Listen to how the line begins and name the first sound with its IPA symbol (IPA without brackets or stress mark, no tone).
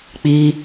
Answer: k͡p